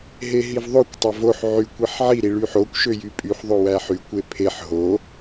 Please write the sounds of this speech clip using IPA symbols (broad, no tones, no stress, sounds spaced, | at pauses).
ɦ e ɦ i v ðˤ o kʷ tˤ æ v o ħ ʕ y kʷ i ħ ʕ i ɾ i ɭ y ħ o kʷ ʃ ø j y pʼ y ħ ðˤ o w æ ħ y kʷ e pʰ e ħ ɦ o